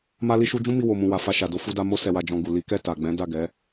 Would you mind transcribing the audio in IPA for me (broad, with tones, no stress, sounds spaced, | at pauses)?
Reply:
m a˦ l i˦ ʃ u˦ d͡ʒ ũ˦ m i˧ w o˨ m ũ˨ w a˨ f a˧ ʃ a˨ d o˧ f u˧ d a˧ m o˦ s ɛ˧ w a˧ d͡ʒ ɔ̃˧ ɡ u˨ l i˨˦ k ɛ˦˨ t a˨ ɡ͡b ɛ̃˨˦ d a˦˨ ɡ ɛ˨˦